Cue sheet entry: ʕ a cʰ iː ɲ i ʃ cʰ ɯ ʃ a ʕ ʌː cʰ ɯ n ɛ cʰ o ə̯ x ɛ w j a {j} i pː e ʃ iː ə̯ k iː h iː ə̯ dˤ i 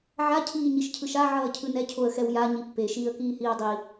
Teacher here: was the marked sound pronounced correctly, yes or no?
no